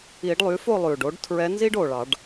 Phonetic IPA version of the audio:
i˨˩˦ɖlˠy˩˥fo˥˨ lˠʉ˨˩ɖo˧˥ɖtʰɹɛ˧˥ nzi˥ɖo˨˩ɭɑ˨˩˦ɖ

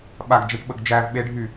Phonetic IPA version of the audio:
ɓaɡ d͡ʒaʈɓəɡd͡ʒæv ɓeɖʱy

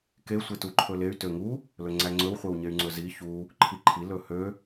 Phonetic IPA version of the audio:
ke sʷetuǃʰɵley̯ tøŋu | lɵŋ͡ǀæŋ͡ǀɵw χʷewɲey̯ŋ͡ǀɵzi çu | ǃʰiǃʰi lɵhø

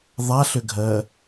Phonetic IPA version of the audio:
ðˤaɬʏɡʱɜ

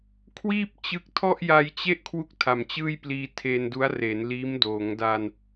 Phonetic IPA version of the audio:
kʰwiː˥˩p̚ t͡ɕɯ˥˩k̚ tʰɔ˥˩ʔja˧jt͡ɕe˥˩ʔ kʰwu˥˩k̚tʰa˨˩mt͡ɕɯː˥˩jpliː˧ tʰe˧ndu˦˥a̯ re˩˦nliː˦˥m doː˩˦ŋda˧n

